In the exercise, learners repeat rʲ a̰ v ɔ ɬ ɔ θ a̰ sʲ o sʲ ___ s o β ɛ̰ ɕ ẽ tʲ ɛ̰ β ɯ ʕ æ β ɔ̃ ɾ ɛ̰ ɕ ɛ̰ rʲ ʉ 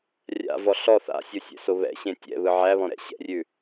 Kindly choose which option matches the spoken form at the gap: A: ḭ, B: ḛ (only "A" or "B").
B